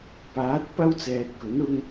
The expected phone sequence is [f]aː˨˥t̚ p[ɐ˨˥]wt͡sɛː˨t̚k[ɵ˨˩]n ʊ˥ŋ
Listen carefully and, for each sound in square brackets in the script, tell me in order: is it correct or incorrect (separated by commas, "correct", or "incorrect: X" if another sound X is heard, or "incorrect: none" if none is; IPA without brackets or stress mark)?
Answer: incorrect: p, incorrect: ɐ˥, incorrect: ɵ˨˥